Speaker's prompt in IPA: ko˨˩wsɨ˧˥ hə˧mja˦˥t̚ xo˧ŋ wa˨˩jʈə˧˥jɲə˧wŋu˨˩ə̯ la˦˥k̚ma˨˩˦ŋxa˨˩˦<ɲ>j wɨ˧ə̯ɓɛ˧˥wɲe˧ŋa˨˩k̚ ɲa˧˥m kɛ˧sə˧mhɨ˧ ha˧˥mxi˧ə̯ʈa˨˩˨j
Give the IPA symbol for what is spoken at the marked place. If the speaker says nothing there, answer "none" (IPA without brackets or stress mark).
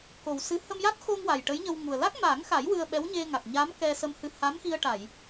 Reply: none